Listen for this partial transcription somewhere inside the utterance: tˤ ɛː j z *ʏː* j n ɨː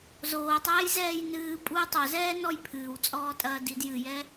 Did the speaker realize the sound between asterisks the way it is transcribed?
no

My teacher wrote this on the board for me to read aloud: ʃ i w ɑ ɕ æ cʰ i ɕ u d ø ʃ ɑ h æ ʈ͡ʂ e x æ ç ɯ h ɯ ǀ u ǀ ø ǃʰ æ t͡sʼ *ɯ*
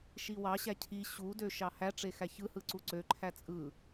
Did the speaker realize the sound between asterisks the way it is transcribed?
yes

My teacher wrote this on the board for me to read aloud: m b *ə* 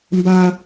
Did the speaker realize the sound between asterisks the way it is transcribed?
no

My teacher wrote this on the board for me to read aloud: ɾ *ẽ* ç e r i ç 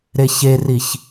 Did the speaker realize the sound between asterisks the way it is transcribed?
no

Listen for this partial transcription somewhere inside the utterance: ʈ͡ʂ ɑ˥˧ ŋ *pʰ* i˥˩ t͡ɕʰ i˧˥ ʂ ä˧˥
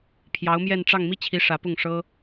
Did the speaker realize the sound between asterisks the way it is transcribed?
no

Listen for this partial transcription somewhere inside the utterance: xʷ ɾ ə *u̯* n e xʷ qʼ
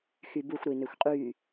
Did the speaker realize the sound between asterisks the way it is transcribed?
no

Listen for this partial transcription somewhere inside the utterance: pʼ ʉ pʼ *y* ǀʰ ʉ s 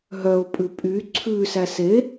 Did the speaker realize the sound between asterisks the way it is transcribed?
yes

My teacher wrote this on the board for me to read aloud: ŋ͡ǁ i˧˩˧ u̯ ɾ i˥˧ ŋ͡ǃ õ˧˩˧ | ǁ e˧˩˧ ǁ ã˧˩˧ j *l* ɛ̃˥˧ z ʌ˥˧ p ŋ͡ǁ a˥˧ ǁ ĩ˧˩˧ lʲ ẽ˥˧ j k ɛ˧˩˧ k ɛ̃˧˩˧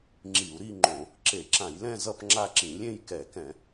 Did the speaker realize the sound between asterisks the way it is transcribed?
yes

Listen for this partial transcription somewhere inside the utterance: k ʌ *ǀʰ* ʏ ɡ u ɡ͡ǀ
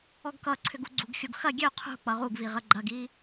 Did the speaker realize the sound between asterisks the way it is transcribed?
yes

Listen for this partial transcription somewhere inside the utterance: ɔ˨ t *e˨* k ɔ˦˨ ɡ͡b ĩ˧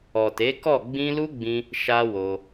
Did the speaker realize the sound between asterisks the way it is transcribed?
no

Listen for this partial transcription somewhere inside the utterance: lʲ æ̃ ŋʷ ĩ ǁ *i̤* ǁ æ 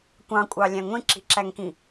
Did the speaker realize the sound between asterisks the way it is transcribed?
yes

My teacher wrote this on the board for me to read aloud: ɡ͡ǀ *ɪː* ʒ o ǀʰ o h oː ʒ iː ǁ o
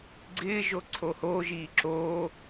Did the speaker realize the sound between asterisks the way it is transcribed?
yes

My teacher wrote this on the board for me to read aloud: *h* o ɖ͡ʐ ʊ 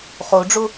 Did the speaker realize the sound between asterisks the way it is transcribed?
no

